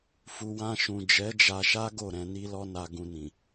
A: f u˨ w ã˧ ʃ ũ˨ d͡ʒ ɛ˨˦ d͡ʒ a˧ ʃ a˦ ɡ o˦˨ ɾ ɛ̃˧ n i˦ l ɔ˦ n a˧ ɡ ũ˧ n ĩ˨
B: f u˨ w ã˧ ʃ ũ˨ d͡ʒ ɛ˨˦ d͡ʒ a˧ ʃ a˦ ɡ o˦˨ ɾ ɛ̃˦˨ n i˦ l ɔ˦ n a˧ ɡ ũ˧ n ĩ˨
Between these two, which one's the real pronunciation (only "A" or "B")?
A